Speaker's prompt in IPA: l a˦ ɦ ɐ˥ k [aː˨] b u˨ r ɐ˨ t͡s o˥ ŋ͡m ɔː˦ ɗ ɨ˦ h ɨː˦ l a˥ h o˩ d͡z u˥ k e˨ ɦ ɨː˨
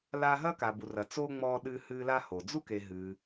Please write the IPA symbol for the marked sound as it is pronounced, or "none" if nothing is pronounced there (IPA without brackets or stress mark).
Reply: a˨